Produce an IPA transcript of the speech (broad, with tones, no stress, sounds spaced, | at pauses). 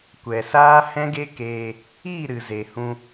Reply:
kʷ ɛ˨ s aː˦ h ɛ̃˦ ɡ e˦ k eː˧ | i˦˨ ɾ ɨ˨ z e˨ h ũ˧